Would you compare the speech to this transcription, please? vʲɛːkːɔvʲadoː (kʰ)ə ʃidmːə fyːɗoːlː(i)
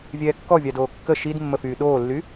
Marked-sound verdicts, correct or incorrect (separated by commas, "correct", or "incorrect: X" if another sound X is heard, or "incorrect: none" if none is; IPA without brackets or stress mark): incorrect: kː, incorrect: y